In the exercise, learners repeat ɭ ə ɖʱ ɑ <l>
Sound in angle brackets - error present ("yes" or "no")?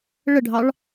yes